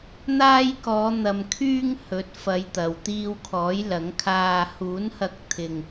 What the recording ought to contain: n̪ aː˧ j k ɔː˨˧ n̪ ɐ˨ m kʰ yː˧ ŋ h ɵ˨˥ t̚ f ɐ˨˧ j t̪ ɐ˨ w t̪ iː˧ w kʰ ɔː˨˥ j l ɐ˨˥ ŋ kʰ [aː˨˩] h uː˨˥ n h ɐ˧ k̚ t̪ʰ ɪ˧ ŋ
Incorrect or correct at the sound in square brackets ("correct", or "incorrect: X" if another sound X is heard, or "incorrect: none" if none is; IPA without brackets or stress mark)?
incorrect: aː˧